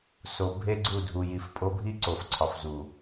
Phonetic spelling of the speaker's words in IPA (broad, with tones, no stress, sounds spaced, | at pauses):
s o˨ bʱ e˦ ɡ͡ǀ u˦˨ dʱ u˨ j i˨ f pʼ o˦ bʱ i˦ ǀ o˨ f ǀʰ ɒ˨ f z u˨